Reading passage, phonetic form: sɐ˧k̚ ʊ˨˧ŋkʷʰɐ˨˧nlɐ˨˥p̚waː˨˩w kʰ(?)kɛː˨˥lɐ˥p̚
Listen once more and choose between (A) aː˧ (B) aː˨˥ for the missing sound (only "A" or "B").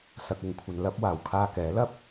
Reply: A